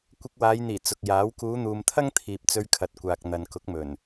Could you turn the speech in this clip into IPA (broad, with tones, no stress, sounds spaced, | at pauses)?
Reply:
kʷ ɪ˧ k̚ w aː˨˧ j n̪ iː˨˩ t͡s ʊ˨ k̚ j aː˨˥ w k uː˨˧ n̪ uː˨ m t̪ʰ ɐ˥ ŋ t̪ʰ iː˨ p̚ t͡s ɵ˧ ɥ kʰ ɐ˨ t̚ kʷ aː˨ k̚ n̪ ɐ˨ n k ʊ˨˥ k̚ m ɵ˨˩ n